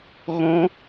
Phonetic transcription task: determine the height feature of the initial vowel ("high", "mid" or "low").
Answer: mid